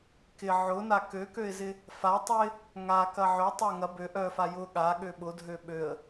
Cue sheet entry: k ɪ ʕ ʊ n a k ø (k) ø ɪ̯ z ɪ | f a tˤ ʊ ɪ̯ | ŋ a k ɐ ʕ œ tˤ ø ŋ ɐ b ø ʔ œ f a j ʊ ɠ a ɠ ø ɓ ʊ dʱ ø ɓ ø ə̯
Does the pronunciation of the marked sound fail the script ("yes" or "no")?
no